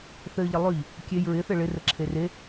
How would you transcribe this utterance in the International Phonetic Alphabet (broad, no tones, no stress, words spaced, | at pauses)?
θɘ ʎəlˠʉʎ | kʲej ɹɪθɘ ɭɪrəǁʰe re